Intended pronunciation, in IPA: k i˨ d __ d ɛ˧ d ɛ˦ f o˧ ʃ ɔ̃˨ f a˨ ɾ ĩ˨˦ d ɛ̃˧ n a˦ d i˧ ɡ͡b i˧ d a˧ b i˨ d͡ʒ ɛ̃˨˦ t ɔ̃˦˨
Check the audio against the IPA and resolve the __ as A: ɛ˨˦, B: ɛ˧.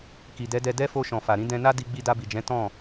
A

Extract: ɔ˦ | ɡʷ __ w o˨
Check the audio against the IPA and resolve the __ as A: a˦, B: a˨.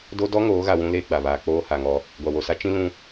B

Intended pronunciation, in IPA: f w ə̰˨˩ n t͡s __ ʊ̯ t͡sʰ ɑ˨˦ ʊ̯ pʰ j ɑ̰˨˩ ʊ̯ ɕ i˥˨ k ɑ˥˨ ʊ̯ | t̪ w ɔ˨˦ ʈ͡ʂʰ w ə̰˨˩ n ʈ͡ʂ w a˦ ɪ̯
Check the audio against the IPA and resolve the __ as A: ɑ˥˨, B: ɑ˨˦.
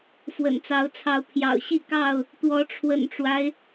B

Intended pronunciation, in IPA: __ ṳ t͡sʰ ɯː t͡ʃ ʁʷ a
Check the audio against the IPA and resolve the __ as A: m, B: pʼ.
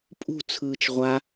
B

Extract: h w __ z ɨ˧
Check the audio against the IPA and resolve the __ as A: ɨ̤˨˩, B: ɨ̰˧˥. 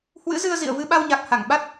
B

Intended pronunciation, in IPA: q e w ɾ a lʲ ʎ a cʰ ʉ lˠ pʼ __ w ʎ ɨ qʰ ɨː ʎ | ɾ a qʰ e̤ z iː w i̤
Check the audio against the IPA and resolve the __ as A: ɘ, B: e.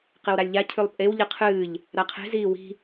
B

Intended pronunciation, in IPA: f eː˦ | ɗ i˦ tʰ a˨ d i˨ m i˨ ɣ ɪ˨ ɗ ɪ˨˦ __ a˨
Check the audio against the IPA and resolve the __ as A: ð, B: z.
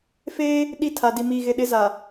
B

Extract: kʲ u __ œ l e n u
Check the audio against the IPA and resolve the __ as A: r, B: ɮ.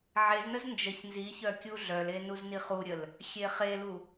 B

